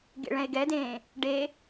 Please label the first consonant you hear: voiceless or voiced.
voiced